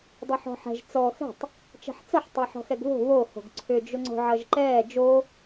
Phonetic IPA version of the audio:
dˤ o ħ ɔ̤ ħ ɛ̤ ʒ t͡s ɔ x ɛ̤ tˤ | t͡ʃ ɛ̤ ħ t͡s ʌ ħ tˤ ɛ ħ ɔ̤ x ɛ ɡ β o̤ β o h o̤ ɡ ǀʰ ʏ d͡ʒ ʊ ŋ͡ǀ o̤ ʕ ʌ ʒ ǃ ɛː d͡ʒ o

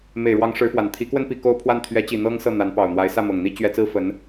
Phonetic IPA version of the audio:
m e˨˩ ɪ̯ ɻ w ɑ˧˥ ŋ ʂ ɻ̩˧˥ f w a˨˩ n t̪ʰ i˧˥ k w ə˥ n p i˧˥ k o˥ ʊ̯ pʰ w a˥˩ n t̪ʰ ɥ ɛ˧˥ t͡ɕ i˨˩ n̪ ɤ˥ ŋ s ɤ˥˩ n̪ a˧˥ n p ɑ˨˩ ʊ̯ n̪ w a˧˥ ɪ̯ s ä˥˩ m ɤ˨˩ ŋ n̪ i˥ t͡ɕ ɥ ɛ˥ t͡s ɹ̩˥ f ə˧˥ n

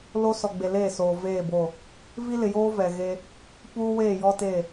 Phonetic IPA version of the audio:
l o˦ s ɔ˨ ɡ͡b e˨ l eː˦˨ s oː˨ v eː˦˨ b o˦˨ | v i˦ l ɪ˨ j oː˦ v ɛ˨ ɣ e˦ | p uː˦ w eː˦˨ j ɔ˦ t e˦˨

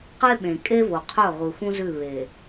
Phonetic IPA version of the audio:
q e˦ ɓ ẽ˨ kʼ e˦ v o˨ qʰ ɵ˦˨ ʁ u˨ x ũ˦ z ʉ˦˨ β e˨

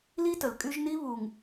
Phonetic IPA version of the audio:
l i˦ t ə˨ l kʼ y˦ ʒ n i˦ β u˨ ŋ

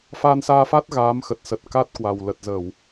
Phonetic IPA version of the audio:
f a˧ n s aː˧ f a˦˥ t̚ ɣ aː˨˦ m x ə˨˩ t̚ s ə˨˩ t̚ k a˦˥ t̚ k w a˨˩ w l ə˨˩ t̚ z ə˧˩˨ w

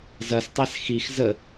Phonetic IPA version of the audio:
z ɐ s tˤ æ s x i x z ə

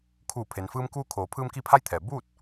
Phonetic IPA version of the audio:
kʰ uː˧˩ pʰ e˩ n f ɯː˧ m k uː˧ kʰ oː˩˧ pʰ ɯː˧ m k i˧ pʰ a˧˥ j t̪ʰ ɛː˩ b uː˥˨ t̚

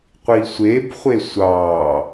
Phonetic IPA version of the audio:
qʷ i sʷ e b χʷ e sʷ ɑ

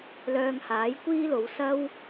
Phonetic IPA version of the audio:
l œː˧ ŋ h aː˨˥ j kʷ iː˥ l o˨˧ w s ɐ˥ w

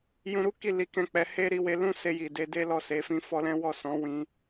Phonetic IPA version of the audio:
j ũ˧ ɾ u˦ k i˦˨ l i˧ k ɛ̃˧ k͡p ɛ˧ h e˦ ɾ i˧ w e˧ l ũ˦ s e˧ j i˨ d e˨˦ d e˦ l ɔ˦˨ s e˨˦ f ĩ˧ f ɔ˦ l ɛ̃˦ w ɔ˦˨ s ɔ̃˨˦ w ĩ˧

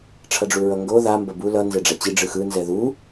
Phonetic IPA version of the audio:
ʈ͡ʂʰ ʌ ɖ͡ʐ u ɹ ʌ ŋ ɡ o ð a m b ʌ b u l ʌ n z ɛ ɖ͡ʐ a t͡ɕ i ɖ͡ʐ ɯ x ɯ n z ɛ ð u

